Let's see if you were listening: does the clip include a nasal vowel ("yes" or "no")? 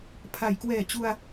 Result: no